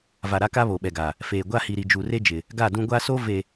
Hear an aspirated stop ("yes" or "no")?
no